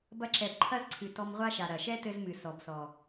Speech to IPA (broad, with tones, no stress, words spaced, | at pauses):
bɐ˧ ǁɛ˨bǃʰɐ˦zǀʰɨ˨ tɔ˧mʁʷa˦ʃa˨ ɾɐ˨ ʃɛ˦tɘ˧zmɨ˨ sɔ˨bsɔ˨